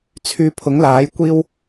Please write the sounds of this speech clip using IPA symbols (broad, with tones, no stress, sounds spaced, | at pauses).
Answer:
t͡sʰ yː˧ pʰ ʊ˨˥ ŋ l aː˨˥ j kʷ iː˥ w